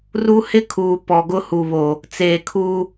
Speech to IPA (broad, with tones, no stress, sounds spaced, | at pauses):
r u˦ h ɪ˦ kʰ uː˨ p ɔ˨ ɡ ʊ˦ h u˨ β o˨ | t͡s eː˨ kʰ uː˦